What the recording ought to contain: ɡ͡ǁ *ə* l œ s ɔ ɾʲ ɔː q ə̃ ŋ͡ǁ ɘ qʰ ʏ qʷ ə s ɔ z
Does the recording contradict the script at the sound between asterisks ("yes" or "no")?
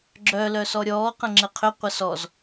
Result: yes